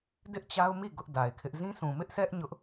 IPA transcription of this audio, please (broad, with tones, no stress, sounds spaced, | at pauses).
d ɪ˦ ʔ t͡ɕ a˦ ʊ̯ m i˦˨ ɡ ʊ˦ ʔ d a˨ ɪ̯ kʰ ɪ˦ ʔ z ĩ˦ sʰ ũ˨ m ɪ˦ ʔ s ɛ˦ ʔ ɲ ʊ˦ ʔ